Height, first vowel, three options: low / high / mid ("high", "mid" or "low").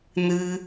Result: high